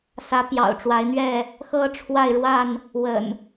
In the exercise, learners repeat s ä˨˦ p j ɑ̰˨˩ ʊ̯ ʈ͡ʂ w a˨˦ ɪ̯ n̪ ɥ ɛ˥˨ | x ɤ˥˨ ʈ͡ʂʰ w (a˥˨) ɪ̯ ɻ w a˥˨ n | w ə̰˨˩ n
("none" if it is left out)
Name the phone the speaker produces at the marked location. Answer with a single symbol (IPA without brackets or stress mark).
a˥˨